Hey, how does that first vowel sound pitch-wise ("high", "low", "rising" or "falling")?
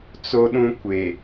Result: low